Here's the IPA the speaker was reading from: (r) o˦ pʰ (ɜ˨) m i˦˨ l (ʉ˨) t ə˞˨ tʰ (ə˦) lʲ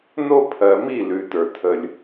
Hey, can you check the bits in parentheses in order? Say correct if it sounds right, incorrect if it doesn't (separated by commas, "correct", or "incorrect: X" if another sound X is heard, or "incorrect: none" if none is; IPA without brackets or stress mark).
incorrect: n, correct, correct, correct